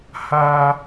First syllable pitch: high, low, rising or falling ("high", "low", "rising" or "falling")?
high